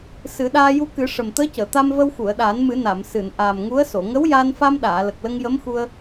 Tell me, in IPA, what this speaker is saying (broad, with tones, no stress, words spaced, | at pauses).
sɨ˨˩˦ɗaː˧ ju˧kɨ˨˩˦ ʂə˨˩mt̪əː˧˥cəː˨˩˨ t̪a˧mvə˧w xu˨˩˨ə̯ɗaː˨˩˦nmɨ˨˩˦ na˨˩˨m sɨ˨˩˨n ʔaː˨˩mŋu˧˥ə̯so˨˩˨ ŋə˧˥wjaː˧nfa˧mɗaː˨˩˨ lə˨˩k̚lə˧ŋjə˧˥mxu˧ə̯